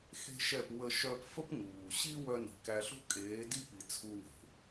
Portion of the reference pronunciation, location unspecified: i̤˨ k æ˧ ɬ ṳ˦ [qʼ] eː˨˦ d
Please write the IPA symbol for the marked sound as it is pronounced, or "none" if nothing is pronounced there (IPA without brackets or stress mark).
kʼ